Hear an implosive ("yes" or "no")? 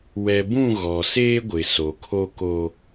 no